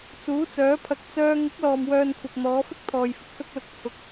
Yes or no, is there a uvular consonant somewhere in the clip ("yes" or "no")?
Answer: no